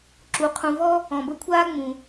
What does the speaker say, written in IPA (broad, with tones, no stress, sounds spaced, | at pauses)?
ǁ u˩ qʰ ũ˨ v ɔ˥ | ɔ̃˩ b ə˦ kʷʰ aː˥ ŋ͡m ũ˩